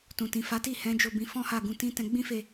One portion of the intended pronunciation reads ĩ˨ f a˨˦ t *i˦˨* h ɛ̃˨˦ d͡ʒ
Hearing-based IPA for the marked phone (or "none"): i˦˨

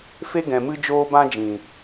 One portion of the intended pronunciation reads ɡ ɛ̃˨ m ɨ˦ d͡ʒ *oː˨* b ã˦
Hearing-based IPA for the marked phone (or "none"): oː˦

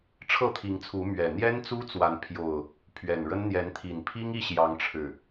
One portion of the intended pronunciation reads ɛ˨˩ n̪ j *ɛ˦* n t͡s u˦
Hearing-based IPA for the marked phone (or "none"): ɛ˦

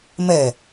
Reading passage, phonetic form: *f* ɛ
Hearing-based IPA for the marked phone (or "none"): m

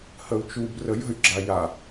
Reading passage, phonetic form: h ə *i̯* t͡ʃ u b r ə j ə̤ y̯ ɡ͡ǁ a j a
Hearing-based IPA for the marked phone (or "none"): u̯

